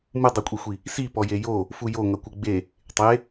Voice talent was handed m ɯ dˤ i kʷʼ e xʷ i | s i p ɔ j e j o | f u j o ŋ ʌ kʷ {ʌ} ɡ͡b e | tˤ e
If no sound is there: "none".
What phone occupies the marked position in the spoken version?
ə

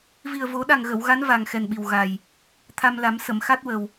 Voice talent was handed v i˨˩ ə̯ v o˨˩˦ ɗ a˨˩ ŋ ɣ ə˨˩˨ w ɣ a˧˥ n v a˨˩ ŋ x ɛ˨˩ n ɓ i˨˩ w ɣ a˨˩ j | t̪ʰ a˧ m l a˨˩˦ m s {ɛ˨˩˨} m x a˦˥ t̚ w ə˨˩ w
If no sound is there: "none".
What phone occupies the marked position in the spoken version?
ə˨˩˨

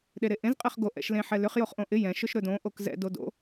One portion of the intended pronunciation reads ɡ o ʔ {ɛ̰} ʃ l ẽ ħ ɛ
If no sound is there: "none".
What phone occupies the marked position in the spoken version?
ɛ̰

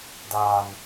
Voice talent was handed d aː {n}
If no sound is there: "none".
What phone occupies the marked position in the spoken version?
n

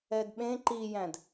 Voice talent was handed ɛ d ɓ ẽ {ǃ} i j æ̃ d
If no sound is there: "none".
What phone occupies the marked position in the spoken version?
ǃ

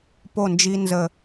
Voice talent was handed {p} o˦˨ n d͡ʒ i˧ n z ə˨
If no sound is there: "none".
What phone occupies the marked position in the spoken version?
p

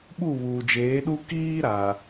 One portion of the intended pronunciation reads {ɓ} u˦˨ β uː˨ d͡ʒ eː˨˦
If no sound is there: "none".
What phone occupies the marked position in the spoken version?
ɓ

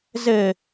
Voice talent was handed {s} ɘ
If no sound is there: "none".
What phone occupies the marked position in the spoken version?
z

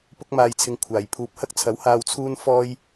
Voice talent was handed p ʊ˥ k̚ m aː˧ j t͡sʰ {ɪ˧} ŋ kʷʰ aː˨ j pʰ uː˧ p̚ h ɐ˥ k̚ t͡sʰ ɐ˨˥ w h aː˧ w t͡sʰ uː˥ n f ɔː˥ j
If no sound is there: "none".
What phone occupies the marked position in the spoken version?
ɪ˧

